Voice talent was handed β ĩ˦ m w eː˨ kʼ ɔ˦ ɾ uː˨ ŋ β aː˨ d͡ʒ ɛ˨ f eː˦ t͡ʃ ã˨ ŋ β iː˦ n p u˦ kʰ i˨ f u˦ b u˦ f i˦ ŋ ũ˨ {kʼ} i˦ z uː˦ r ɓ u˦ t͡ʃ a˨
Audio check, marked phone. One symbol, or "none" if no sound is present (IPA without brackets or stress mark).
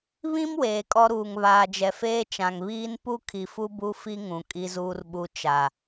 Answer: kʼ